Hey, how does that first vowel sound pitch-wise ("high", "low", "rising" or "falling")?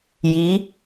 rising